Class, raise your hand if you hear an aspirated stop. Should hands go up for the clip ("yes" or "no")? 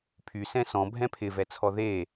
yes